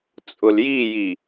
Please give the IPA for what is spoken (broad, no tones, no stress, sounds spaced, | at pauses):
t͡sʼ ʊ l j i j i